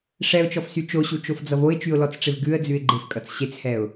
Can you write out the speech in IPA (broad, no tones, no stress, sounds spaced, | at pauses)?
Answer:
ʂ ɛ ʊ̯ t͡ʃ ɔ f s y t͡ʃ o ɕ u t͡ʃ o f d͡z ʌ v o ɪ̯ t͡ʃ y ʊ̯ l ɔ t͡s ʈ͡ʂ ɪ v ɡ ʉ ə̯ d͡z ʉ ɪ̯ ɡ͡ǃ ɪ f kʼ ʌ t͡s ɕ e t͡s h ɛ ʊ̯